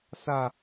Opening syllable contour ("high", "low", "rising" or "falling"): low